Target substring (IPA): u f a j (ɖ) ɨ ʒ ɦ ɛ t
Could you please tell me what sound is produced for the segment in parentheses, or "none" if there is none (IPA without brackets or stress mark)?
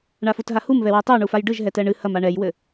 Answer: ɖ